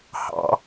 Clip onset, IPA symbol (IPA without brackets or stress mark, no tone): h